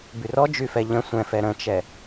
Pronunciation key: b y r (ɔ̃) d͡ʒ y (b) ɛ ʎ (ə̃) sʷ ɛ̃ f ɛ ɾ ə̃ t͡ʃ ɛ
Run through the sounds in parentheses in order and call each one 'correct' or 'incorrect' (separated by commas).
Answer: incorrect, incorrect, correct